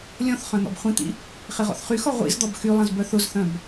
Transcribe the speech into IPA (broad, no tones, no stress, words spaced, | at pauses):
lʲɔ̃θ χœ̃n̪ɔ̰bχʷĩt̪ḭ | χɪʁɔ̰θχyxɔ ʁʷḭzd̪ɔb xylˠɐ̃z bœθʊzθœ̃b